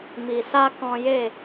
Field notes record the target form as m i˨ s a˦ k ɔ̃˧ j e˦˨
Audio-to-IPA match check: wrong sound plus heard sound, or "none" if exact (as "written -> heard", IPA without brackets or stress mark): none